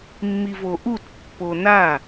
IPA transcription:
mː i v o ʔ u t pː o n a

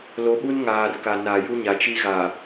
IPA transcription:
l o˨˦ ɓ u˦ n ŋ aː˨ r k a˨ n a˨ j u˦ ɲ a˨ t͡ʃ i˦ ɣ aː˨

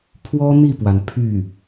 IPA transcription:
pʰ w ɔ˥ n̪ i˥˩ p w a˩ n pʰ y˥˩

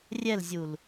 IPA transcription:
rʲ ɛ l zʲ u l

